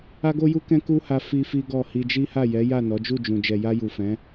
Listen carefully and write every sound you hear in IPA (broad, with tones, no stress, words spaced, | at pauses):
a˦ɡo˦ju˦kɛ̃˦ ku˦ha˧ fi˦fi˦ɡɔ˦˨ hi˧d͡ʒi˦ha˦˨ jɛ˨˦ ja˦˨ nɔ˨˦d͡ʒu˦˨d͡ʒũ˨ d͡ʒɛ˨ja˧ju˨fɛ̃˨˦